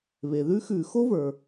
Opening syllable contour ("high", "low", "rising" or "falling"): low